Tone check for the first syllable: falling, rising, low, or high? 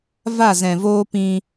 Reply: falling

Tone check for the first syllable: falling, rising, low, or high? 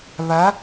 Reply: rising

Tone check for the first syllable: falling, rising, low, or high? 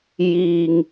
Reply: low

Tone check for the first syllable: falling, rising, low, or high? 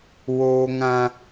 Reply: high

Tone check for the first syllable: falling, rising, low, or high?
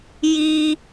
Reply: high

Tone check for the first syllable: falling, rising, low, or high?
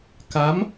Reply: rising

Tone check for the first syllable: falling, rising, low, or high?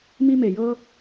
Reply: high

